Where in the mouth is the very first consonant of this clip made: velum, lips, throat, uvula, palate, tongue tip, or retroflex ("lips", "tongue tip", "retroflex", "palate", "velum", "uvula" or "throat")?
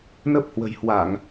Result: tongue tip